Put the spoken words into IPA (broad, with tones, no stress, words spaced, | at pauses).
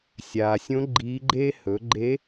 sʲaː˩sʲõ˧˥ ɡ͡ǃiː˧˥ɡ͡ǃeː˥ hɵ˩˧ɡ͡ǃe˧˥